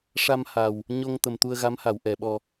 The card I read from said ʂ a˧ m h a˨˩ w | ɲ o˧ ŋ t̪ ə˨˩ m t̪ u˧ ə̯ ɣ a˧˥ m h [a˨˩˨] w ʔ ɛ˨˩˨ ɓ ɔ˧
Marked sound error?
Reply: no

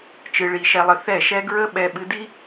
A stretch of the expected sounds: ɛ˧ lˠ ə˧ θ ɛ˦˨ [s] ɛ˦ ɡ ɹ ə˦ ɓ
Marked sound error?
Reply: yes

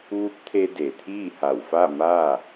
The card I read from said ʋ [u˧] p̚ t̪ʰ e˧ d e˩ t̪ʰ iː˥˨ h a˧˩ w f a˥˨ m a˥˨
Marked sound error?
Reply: yes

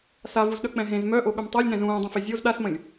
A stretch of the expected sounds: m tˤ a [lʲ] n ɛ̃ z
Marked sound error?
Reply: no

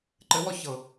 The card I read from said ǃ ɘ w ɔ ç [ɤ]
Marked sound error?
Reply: no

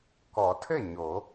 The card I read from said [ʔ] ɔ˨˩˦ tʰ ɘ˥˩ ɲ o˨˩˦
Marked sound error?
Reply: yes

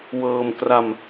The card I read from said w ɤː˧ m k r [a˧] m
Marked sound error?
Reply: no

